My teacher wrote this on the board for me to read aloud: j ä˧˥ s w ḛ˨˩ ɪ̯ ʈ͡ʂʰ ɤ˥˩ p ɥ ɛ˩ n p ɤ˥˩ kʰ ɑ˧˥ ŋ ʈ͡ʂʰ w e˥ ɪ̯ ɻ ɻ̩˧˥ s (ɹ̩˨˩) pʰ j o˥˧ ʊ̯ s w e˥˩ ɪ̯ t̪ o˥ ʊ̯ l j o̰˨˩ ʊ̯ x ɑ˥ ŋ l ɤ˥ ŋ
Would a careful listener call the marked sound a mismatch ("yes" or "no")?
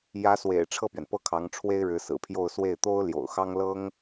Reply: no